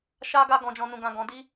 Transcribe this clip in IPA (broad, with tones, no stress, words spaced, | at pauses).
ʃa˦ɡa˦ɡɔ̃˧d͡ʒɔ̃˧ nũ˨ɡã˨ɡɔ̃˨di˧